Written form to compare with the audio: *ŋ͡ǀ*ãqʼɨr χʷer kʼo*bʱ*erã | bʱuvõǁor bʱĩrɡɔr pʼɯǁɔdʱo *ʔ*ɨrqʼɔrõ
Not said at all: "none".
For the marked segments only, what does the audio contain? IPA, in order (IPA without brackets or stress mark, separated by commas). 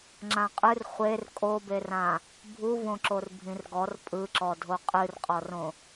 ŋ͡ǁ, b, qʼ